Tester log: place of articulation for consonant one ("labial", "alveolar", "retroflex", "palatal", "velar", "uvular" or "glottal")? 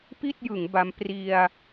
labial